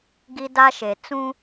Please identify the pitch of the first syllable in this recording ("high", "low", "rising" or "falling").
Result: high